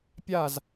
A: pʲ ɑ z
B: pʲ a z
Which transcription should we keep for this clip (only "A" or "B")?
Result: B